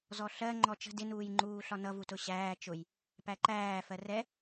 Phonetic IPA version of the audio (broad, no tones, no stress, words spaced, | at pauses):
zɔɬɜ ŋ͡ǃɔt͡ʃə̤ dɪnuːjŋ͡ǃuː ɬɒnʌ vutʊɕæː t͡ʃʊj | pæǃæː fɜrɛ